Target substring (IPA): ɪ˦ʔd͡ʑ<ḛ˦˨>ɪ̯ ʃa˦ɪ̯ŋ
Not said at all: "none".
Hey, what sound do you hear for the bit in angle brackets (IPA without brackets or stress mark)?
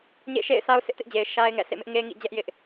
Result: e˨